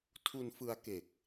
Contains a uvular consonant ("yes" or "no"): no